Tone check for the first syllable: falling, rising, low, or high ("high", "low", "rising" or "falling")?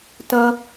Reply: high